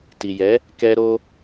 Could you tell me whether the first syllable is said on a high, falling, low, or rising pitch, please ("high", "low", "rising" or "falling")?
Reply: low